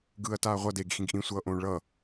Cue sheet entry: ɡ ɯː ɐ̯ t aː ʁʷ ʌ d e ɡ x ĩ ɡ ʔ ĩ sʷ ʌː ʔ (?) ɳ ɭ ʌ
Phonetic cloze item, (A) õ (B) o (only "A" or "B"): A